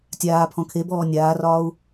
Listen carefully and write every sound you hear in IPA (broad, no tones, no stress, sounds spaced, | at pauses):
tʲ aː pʰ ɔ̃ kʰ e b ɔː nʲ aː r ɒː u̯